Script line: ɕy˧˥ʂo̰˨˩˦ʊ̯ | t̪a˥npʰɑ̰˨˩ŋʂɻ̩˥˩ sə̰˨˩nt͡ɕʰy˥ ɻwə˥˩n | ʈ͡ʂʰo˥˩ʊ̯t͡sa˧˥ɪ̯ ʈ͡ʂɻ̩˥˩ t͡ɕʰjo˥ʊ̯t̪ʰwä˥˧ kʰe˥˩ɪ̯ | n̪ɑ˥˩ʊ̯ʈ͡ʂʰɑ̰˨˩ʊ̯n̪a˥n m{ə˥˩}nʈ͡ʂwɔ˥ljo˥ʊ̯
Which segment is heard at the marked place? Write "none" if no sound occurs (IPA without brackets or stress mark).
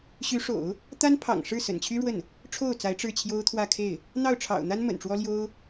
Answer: ə̰˨˩